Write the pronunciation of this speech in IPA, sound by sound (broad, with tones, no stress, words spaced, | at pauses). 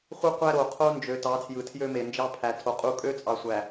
χʷɯ˦qʷæ˦ ɾo˨qʰo˦nd͡ʒø˨ tɑ˨˦tʰjɯ˨tʰjø˦me˨ nd͡ʒɑ˦pʰæ˨tʰo˨ qʼu˦ kʼø˦t͡sʼɑ˨sʷæ˨